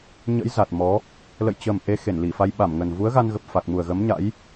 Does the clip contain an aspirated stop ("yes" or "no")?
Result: no